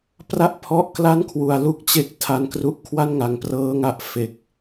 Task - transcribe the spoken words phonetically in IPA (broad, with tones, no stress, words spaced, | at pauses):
pra˦˥ʔ pʰɔ˦˥ʔkla˥˩nkʰwu˩˦a̯lu˥˩k̚ t͡ɕe˦˥k̚tʰa˧nkru˦˥ʔ kʰwa˥˩nŋa˨˩ŋprɤː˦˥ ŋa˦˥ʔfe˨˩k̚